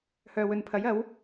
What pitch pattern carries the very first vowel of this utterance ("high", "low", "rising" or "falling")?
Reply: low